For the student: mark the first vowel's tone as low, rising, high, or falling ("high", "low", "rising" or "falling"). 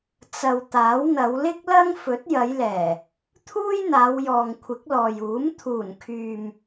low